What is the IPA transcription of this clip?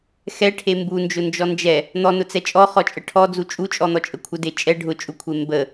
x ɛ ʈʰ e m b u n d͡ʒ ʊ n d͡ʒ ɔ n d͡ʒ ɛ | n̪ ɔ n ʊ t͡s ɛ t͡ʃʼ ɔ χ ɔ t͡ʃʼ ə ʈʰ ɔ d͡z u t͡ʃʼ u t͡ʃʼ ɔ n̪ ɔ t͡ʃʼ ə kʷʰ ə d e t͡ʃʼ ɛ ɖʱ ʊ t͡ʃʼ u kʷʰ e m b ə

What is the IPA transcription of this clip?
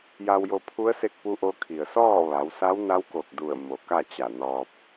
j a˧ w j o˧ pʰ u˧˥ ə̯ s e˥˨ k̚ p u˧˥ ʔ o˧˥ kʰ i˩ ə̯ s ɔː˥˨ ʋ a˩˧ w s a˧˥ w n a˧˥ w k o˧˩ k̚ d u˧˩ ə̯ m o˩ k a˥˨ t͡ɕ a˧˩ n ɔː˧ p̚

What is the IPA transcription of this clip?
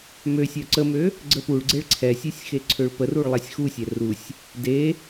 m ø sʲ œ ǀ ə m ø | ɡ͡ǀ ə p u ɭ ɡ͡ǀ e ɭ ǀʰ ɛ sʲ ø sʲ x e ǀʰ ø ɭ p ə r u ɭ lˠ a sʲ x u sʲ ɛ r u sʲ | d e

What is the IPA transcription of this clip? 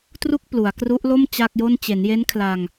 t r u˥˩ k̚ p l u˩˦ a̯ k r u˦˥ ʔ l o˥˩ m t͡ɕ a˥˩ k̚ j o˥˩ n t͡ɕ e˩˦ n j e˦˥ n kʰ l a˧ ŋ

